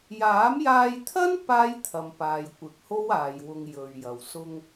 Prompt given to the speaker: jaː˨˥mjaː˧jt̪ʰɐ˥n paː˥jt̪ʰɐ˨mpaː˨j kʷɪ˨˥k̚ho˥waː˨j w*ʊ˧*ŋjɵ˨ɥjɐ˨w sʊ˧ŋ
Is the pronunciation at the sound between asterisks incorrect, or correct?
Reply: correct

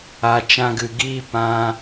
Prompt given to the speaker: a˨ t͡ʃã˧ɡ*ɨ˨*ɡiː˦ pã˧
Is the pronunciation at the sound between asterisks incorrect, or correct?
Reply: correct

